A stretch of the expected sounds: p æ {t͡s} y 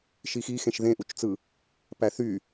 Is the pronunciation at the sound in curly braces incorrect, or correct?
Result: incorrect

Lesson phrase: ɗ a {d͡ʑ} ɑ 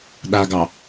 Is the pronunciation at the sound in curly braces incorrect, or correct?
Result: incorrect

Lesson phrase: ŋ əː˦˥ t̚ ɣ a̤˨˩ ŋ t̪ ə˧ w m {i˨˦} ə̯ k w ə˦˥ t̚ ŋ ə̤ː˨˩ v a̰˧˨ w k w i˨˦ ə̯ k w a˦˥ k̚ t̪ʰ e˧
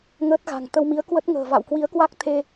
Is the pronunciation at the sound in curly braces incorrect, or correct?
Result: correct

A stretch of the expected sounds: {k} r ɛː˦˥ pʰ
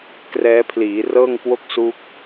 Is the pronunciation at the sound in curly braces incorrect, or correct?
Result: correct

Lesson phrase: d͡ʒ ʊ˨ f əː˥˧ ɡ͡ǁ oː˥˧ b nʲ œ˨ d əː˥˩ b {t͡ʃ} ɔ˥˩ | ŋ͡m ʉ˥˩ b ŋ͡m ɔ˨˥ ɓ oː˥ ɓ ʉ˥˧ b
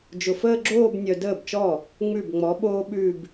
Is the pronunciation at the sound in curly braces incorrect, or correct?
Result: correct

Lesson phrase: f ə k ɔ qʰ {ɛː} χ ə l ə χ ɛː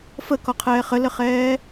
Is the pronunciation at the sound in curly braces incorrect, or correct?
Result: correct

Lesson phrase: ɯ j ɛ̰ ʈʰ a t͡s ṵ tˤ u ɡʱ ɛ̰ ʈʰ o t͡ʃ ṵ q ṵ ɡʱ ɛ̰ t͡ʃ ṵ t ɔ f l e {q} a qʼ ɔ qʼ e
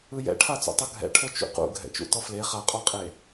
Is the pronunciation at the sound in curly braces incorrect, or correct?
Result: incorrect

